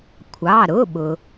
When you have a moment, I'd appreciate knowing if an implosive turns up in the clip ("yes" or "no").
yes